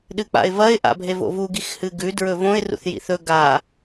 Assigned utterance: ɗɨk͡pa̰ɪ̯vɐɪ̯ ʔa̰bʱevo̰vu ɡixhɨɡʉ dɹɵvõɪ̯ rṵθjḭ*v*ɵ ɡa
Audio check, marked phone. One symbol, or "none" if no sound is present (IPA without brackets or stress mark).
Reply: θ